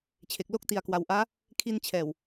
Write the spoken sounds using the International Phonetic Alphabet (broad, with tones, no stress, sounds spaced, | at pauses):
t͡ɕʰ e˨˩ k̚ l o˦˥ k̚ t i˨˩ a̯ k w a˩˦ w ʔ aː˦˥ | kʰ i˧ n t͡ɕʰ ɛː˨˩ w